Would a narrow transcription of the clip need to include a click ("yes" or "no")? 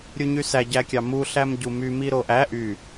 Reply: no